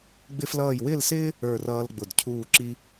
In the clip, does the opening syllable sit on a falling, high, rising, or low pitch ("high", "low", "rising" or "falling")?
high